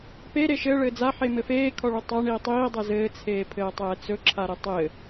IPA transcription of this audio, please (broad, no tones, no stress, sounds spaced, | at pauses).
p e ɾ e ʃ ɘ ɭ ɘː d͡z a ħ e m ɘ f eː kʰ ɔ ɭ ɵ tˤ a ɳ iː tˤ iː dˤ ɛ z ɘː t͡sʰ eː pʰ ɘː tˤ ɛː t͡s ɵ ǁʰ a ɾ ɘ tˤ ɘ